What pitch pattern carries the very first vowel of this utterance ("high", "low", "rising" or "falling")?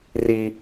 high